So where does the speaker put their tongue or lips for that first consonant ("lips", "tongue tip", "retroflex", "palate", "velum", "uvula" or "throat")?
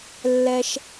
tongue tip